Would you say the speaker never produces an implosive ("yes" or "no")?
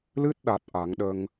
no